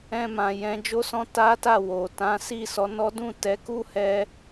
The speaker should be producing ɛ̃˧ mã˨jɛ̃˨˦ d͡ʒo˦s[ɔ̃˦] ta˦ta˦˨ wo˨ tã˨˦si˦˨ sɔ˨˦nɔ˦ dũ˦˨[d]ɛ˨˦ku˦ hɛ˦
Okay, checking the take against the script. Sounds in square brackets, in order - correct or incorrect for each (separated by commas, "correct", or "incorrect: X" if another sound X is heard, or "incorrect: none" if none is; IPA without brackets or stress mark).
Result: correct, incorrect: t